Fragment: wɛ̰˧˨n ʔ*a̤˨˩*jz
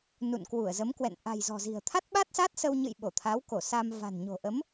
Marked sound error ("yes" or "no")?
no